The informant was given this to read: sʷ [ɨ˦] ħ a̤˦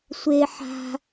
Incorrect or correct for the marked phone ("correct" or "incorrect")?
incorrect